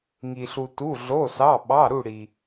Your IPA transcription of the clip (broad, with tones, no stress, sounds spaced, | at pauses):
ŋ i˩ ɬ u˩ t u˩˧˩ ɮ o˩˧˩ s ɑ˩˧˩ ɓ ɑ˩˧˩ ɾ u˧˩ ɽ i˩